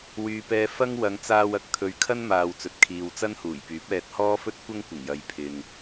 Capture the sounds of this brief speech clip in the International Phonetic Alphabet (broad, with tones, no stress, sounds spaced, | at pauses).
w yː˨ p ɛː˧ f ɐ˥ ŋ w ɐ˨˧ ŋ t͡s aː˧ w ɐ˨˥ k̚ t̪ʰ ɵ˨ ɥ kʰ ɐ˥ n m aː˨ w t͡s ɵ˨ t̚ kʰ iː˨ w t͡s ɐ˥ n h uː˨˩ j p yː˨˥ p̚ ɛː˧ t̚ h ɔː˥ f ɵ˥ t̚ kʷ ɐ˥ ŋ kʷ ɪ˨˩ ŋ j ɐ˨ j pʰ ɪ˨ ŋ